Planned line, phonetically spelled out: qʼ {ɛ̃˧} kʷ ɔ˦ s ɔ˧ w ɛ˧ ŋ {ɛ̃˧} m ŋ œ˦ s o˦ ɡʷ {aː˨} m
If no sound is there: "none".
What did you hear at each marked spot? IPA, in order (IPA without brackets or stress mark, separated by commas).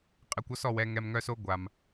ɛ˧, ɛ˧, a˨